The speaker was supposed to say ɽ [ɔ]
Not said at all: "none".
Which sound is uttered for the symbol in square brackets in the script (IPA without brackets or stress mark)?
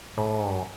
ɔ